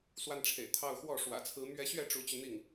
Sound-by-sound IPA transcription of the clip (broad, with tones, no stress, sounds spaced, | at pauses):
s w a˥˩ n ʈ͡ʂʰ ḛ˨˩ ɪ̯ t̪ʰ ɑ˥˧ ʊ̯ x w ɔ˥˩ ʂ w ä̰˨˩ t͡sʰ ɹ̩˧˥ m ɥ ɛ˧˥ ɕ ɥ ɛ˥˩ ʈ͡ʂ u˧˥ t͡ɕ y˧ n̪ i˥˩ ŋ